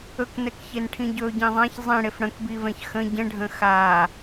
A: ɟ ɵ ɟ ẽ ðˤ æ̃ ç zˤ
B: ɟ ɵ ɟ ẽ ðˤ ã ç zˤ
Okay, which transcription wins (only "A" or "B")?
B